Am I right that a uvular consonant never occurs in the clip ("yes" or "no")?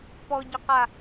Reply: no